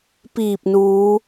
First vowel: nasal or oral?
oral